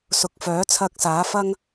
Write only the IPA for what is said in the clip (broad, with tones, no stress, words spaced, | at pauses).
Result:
sʊ˨˥k̚fœː˨˥ t͡sʰɐ˨k̚ saː˨˥ fɐ˥ŋ